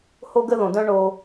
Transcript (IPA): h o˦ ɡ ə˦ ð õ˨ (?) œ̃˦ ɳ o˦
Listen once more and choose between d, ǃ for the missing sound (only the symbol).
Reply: d